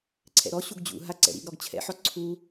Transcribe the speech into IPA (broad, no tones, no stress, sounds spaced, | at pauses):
ǀʰ ɛ̰ ɾ ɔ ɕ u ɡ d͡ʑ ṵ ɦ a ǀ ɛ̰ ɾ ḭ ɡ ɾ ɔ ɡ t͡ɕʰ ɛ̰ ħ ɔ ǀʰ u